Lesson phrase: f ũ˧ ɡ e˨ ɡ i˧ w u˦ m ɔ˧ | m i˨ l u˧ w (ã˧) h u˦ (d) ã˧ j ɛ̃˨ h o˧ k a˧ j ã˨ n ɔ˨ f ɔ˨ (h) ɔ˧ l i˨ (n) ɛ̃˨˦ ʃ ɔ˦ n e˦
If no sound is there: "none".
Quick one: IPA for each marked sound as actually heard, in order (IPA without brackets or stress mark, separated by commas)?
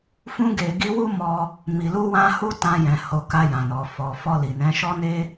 ã˧, t, f, n